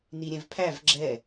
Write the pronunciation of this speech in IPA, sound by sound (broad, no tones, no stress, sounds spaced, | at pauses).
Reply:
n i ɾʲ ɛ̃ v pʰ æ v ɡ͡ǁ ɛ